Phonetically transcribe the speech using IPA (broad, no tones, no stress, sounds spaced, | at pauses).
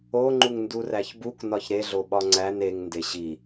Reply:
o ŋ͡ǃ u ŋ n d u r æ ç b u k n ɒ ç ɾ e ɮ o ɓ ɒ ŋ͡ǀ æ n e ŋ n d e ɕ i